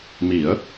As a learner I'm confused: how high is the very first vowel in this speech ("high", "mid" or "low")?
high